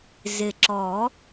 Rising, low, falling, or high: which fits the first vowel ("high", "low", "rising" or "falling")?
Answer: low